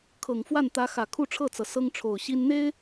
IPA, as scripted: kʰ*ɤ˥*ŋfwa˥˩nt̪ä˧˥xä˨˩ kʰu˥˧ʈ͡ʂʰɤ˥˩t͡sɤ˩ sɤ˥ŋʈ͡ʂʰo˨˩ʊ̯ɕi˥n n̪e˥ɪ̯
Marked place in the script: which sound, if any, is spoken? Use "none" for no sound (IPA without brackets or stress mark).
ɤ˨˩